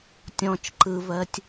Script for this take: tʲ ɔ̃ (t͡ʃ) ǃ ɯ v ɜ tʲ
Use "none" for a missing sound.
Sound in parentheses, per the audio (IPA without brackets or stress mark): t͡ʃ